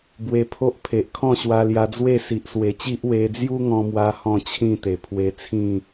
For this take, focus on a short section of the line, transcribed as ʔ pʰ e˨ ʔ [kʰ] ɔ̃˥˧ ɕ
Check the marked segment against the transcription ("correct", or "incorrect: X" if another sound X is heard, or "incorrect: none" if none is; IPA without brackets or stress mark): correct